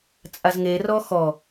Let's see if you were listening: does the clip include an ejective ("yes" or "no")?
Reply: yes